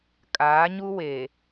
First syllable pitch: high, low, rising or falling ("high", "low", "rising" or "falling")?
rising